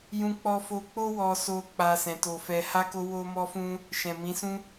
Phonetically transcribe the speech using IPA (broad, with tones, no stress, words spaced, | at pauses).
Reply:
jũ˧k͡pɔ˧fo˧ k͡po˦wɔ˧so˧ k͡pa˧sɛ̃˨to˧fɛ˧ ha˦ko˦ wo˦mɔ˦fũ˦ | ʃɛ̃˨mĩ˨˦sũ˦